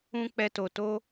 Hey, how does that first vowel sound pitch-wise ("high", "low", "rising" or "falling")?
high